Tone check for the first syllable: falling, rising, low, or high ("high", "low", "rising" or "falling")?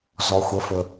low